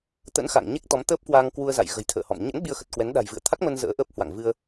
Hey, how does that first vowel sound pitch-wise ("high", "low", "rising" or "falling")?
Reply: rising